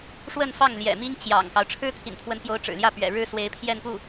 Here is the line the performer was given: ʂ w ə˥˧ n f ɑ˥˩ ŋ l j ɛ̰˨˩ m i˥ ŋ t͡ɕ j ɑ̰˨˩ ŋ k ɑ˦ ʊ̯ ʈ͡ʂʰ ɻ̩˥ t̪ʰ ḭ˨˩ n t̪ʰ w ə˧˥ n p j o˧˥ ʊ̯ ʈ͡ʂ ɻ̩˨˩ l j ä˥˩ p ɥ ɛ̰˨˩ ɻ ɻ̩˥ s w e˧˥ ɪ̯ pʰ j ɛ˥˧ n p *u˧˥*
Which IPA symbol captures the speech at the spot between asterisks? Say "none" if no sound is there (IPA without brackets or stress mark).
u˥˩